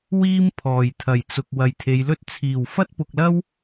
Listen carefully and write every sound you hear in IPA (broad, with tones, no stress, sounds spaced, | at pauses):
w iː˥ m pʰ ɔː˨˩ j t̪ʰ ɐ˨˩ j t͡s ʊ˨ k̚ w ɐ˨ j t̪ʰ e˨˧ j l ɵ˥ t̚ t͡sʰ iː˨˩ w f ɐ˥ t̚ p ʊ˨ k̚ l ɐ˥ w